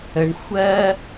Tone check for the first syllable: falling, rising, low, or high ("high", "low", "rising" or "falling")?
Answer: high